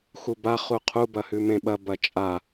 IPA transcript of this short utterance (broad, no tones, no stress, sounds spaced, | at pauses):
x u b a χ u qʰ u b ɐ h ʉ m ẽ ɓ ɐ b ɐ t͡ʃʼ a